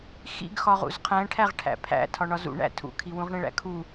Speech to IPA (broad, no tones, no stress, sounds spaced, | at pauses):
x ḭ ɡ x ɒ ʁ ṵ z qʰ æ̃ ʈʰ æ ʁ ʈʰ æ̰ pʰ æ̰ tʰ ɒ ɳ ɒ z ṵ ɳ æ̰ tʰ ṵ kʰ i w ũ ʁ ɳ ẽ ɭ æ̰ kʰ u